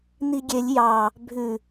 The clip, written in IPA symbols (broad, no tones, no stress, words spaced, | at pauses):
niɡʲelʲ jɑ | bʱʉ